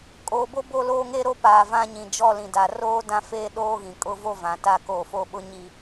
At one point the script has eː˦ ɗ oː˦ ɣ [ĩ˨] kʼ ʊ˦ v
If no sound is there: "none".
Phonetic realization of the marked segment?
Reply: ĩ˨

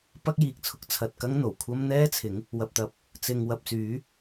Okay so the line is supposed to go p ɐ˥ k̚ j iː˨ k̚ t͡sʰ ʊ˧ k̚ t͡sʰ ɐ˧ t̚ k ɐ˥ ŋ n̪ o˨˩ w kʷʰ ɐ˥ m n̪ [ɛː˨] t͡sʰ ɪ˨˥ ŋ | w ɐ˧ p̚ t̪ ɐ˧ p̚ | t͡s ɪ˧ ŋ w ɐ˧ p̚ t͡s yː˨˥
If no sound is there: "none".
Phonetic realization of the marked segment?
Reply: ɛː˥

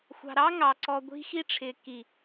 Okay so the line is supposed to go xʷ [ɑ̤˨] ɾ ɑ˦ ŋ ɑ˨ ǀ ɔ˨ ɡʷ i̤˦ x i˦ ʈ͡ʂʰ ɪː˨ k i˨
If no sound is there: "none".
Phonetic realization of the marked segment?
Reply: ɑ̤˨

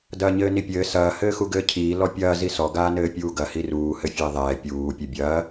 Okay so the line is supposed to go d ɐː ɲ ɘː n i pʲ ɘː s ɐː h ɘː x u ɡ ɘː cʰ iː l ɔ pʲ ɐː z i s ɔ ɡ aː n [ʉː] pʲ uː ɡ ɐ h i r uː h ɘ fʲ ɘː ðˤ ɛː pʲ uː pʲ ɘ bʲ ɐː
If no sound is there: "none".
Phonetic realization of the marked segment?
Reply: ɘː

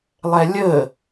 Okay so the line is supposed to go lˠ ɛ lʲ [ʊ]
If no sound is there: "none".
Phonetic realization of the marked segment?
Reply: ə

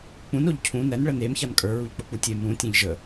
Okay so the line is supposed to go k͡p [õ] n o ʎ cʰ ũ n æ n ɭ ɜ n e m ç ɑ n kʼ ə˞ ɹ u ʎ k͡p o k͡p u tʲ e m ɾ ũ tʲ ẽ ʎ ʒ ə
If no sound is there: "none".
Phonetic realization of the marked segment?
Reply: ũ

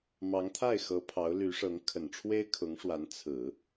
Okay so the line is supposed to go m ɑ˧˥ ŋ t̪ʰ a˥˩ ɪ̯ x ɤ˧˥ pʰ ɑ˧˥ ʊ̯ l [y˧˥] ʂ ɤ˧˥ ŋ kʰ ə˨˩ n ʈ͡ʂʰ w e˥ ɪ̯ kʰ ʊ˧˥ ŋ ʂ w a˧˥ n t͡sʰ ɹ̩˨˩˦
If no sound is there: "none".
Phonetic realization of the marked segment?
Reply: y˧˥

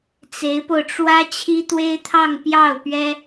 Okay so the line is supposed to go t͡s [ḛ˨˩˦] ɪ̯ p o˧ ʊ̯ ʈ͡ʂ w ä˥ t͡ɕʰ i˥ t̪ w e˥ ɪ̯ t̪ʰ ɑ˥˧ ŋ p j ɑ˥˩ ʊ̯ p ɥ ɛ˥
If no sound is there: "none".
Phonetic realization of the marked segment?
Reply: e˧˥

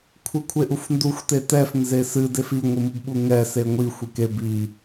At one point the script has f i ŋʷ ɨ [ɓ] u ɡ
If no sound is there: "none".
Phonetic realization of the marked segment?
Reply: m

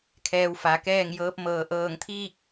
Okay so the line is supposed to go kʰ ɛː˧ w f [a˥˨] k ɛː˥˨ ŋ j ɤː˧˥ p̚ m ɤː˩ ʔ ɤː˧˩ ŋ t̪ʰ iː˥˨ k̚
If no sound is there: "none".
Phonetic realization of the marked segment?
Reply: a˩˧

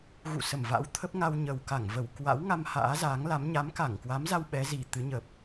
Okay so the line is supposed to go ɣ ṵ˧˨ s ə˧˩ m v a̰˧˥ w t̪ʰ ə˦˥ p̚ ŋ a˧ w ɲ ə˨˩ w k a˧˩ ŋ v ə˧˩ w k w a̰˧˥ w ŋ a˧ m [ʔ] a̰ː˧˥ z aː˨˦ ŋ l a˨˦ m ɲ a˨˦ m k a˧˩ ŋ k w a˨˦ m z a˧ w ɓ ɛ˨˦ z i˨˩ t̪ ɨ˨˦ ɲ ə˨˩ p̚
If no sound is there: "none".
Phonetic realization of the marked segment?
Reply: h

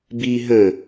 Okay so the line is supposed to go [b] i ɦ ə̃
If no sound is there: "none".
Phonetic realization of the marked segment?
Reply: b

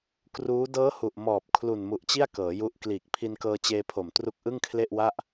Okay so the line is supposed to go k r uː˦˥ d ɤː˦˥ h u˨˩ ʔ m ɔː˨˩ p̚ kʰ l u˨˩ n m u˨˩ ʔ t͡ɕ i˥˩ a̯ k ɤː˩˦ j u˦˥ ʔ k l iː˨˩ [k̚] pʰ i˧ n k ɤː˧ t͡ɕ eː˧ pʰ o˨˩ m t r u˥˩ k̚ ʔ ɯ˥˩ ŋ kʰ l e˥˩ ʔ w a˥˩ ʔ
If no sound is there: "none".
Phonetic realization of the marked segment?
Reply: k̚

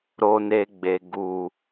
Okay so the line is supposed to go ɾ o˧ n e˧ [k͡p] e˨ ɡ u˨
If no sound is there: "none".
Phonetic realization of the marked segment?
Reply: ɡ͡b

